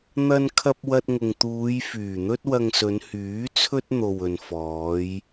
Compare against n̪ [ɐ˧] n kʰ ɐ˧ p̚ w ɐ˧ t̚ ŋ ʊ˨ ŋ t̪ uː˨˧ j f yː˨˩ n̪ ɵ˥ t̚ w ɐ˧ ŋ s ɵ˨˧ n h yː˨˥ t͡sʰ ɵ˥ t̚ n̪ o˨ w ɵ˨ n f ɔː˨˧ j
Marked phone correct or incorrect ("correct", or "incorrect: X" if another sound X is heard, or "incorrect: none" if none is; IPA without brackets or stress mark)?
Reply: correct